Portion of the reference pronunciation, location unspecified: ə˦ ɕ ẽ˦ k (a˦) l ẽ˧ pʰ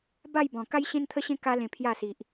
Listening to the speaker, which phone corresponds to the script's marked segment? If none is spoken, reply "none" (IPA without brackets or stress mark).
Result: a˦